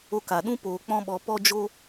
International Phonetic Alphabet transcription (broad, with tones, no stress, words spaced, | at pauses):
o˧ka˨ ɗũ˧ poː˨ k͡pɔ̃˦ ɓɔ˧pɔ˦ d͡ʒo˦